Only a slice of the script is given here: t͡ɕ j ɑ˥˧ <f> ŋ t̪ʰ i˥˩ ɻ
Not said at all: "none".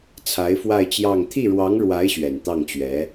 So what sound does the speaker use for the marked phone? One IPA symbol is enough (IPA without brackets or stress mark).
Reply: none